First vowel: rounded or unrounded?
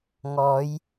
rounded